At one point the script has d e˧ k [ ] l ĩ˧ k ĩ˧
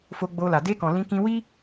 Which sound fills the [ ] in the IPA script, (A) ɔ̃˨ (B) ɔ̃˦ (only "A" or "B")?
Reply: A